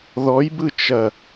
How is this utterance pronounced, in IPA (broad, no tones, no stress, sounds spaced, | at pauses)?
ð ɔ j b ɯ t͡ʃ ɐ